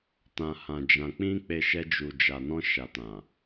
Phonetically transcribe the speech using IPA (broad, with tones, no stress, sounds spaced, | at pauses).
t ã˨ h ã˨ d͡ʒ ã˨ k͡p ĩ˧ k͡p e˧ ʃ ɛ˦ d͡ʒ u˧ d͡ʒ a˨ n ɔ̃˧ ʃ a˨ t ã˨